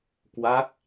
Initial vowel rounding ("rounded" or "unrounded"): unrounded